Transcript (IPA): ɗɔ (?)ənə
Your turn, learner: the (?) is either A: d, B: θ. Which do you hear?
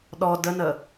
A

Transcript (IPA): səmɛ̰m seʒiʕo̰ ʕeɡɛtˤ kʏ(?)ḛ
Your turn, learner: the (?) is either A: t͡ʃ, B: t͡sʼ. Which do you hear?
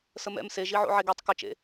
A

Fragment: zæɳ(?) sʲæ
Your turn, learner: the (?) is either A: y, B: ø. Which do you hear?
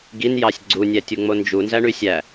A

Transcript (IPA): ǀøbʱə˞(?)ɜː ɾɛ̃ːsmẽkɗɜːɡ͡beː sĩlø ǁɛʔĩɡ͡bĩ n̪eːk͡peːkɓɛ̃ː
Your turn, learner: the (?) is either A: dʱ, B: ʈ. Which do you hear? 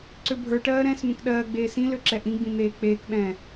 B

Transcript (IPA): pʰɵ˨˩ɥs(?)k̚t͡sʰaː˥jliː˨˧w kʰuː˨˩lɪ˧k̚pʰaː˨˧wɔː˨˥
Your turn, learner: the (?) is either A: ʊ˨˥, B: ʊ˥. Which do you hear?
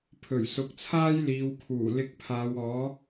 A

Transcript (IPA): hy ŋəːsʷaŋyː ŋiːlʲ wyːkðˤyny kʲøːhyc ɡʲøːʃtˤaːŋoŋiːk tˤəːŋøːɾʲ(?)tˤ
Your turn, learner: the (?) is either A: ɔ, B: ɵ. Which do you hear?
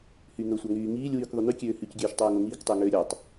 A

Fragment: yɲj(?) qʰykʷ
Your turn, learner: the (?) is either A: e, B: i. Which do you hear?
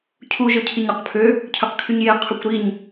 A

